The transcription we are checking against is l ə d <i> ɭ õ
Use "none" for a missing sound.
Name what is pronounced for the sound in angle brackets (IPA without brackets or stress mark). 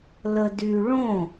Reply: y